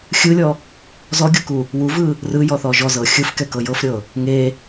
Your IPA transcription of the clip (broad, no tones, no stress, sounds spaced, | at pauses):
xʲ ɯ lʲ ɔ | z ɔ ɡʲ o k u | w u v ɯ | r ɯ j ɔ θ ɔ ʒ ɔ z ɤ xʲ ɯ f k ɛ k ɤ j ɤ f ɾʲ ɤ | ŋ e